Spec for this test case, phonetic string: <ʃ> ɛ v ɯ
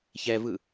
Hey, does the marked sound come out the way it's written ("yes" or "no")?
no